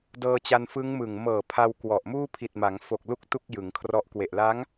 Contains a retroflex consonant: no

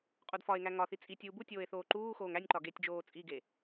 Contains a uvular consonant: yes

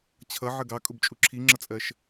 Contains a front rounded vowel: no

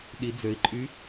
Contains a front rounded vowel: yes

